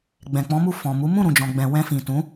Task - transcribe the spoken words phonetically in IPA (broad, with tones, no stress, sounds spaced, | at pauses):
ɡ͡b ɛ̃˨ k͡p ɔ̃˨˦ m u˦˨ f ɔ̃˨ m u˨˦ m ũ˦˨ ɾ ũ˨ d͡ʒ ɔ̃˨ ɡ͡b ɛ̃˨ w ɛ̃˧ f ĩ˨ t ũ˨˦